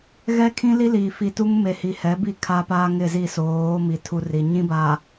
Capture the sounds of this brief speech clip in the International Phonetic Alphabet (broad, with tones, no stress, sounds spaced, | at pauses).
ɣ ɛ˦ kʰ ĩ˦ l i˦ l i˨ f i˨ t u˦ ŋ m e˨ h i˨ h ɛ˨˦ b i˦˨ kʰ a˦ p aː˦ ŋ ɪ˦˨ z i˦˨ s oː˨˦ m i˨ tʰ u˦ r i˨ ɲ ĩ˦ b aː˨